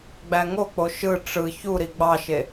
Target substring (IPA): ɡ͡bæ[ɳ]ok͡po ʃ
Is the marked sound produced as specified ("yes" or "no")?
no